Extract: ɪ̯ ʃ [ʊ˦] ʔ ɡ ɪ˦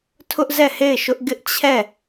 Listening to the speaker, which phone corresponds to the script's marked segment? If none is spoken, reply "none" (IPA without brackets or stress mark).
ʊ˦